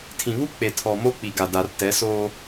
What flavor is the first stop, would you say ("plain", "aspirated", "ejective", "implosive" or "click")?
aspirated